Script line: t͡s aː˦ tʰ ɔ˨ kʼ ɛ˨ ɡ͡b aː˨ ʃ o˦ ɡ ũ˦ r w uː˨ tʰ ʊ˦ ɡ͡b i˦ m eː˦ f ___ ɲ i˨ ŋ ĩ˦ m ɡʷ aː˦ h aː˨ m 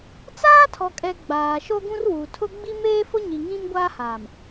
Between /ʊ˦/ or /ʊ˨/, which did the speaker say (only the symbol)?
ʊ˦